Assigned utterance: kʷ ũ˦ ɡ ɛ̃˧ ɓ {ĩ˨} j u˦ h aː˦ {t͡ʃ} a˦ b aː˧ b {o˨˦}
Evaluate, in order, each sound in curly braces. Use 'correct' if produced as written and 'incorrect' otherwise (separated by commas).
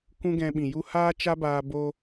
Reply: correct, correct, incorrect